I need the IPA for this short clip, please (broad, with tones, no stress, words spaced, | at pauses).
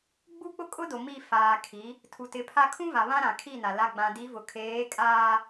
ɡ͡bu˦k͡pʊ˦kʼʊ˦do˨ mi˦˨ faː˨ kʰi˨˦ | tʰu˨tɪ˨˦pʰa˦ kʰũ˦va˨ βã˦ɾã˨kʰi˦˨na˨ la˨ɡ͡bã˨di˨˦ vʊ˨ kʰeː˨˦kʼaː˦